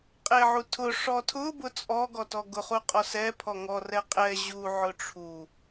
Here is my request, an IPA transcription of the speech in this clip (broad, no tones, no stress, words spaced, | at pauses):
qʼeʕutʰʊ ʂɔtʰʊ bʊt͡sʼɔ ɡɔtɔɡʊχu qʼɔsɛ pʰɔŋɔrɛ qʼɛ ʑuʕʊ ʈ͡ʂʰu